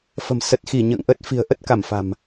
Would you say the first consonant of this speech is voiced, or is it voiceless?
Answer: voiceless